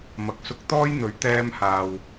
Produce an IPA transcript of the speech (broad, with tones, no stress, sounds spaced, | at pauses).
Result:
m ɐ˨ k̚ s ʊ˧ k̚ t̪ ɔː˥ j n̪ ɵ˨˥ ɥ t̪ ɛː˧ m h aː˨ w